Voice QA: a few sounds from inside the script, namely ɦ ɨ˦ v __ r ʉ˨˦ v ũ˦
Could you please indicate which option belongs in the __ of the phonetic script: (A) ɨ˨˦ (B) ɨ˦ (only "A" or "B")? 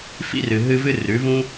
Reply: B